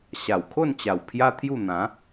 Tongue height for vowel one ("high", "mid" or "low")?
low